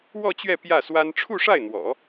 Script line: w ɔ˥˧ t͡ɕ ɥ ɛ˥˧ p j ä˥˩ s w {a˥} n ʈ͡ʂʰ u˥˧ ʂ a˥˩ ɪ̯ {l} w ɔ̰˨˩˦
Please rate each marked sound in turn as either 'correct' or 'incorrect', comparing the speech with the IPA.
correct, incorrect: n̪

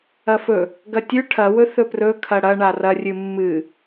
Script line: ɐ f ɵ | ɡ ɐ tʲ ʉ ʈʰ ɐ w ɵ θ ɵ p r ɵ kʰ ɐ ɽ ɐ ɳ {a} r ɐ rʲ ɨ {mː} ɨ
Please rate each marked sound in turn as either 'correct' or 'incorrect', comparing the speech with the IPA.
correct, correct

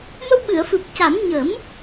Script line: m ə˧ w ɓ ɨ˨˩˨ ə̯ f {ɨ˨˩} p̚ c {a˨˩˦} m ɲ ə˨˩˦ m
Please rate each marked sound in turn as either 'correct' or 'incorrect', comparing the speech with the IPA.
correct, correct

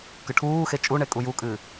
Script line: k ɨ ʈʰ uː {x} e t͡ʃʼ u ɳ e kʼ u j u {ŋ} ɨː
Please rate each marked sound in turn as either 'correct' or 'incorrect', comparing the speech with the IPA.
correct, incorrect: kʼ

